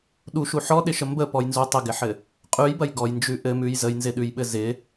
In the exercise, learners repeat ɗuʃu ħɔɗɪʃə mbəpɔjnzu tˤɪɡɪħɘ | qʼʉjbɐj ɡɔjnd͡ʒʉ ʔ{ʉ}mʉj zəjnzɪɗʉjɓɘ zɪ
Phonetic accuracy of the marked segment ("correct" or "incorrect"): incorrect